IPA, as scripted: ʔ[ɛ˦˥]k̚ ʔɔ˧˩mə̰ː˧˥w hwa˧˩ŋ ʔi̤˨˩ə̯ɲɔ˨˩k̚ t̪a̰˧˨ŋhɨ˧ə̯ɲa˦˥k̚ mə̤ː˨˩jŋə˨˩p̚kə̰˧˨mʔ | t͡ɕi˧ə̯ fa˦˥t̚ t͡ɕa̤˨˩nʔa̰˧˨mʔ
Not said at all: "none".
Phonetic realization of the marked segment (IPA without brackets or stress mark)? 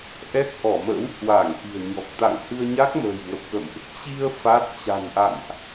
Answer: ɛ˦˥